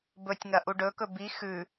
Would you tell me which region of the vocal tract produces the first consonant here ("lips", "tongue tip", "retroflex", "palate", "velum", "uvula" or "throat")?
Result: lips